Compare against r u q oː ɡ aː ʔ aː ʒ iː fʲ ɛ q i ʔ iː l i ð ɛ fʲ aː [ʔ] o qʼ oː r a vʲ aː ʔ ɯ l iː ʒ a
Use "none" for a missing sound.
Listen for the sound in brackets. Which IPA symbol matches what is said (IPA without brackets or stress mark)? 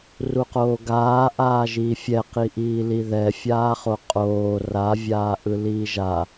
χ